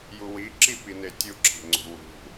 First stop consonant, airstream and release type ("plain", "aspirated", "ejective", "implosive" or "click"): click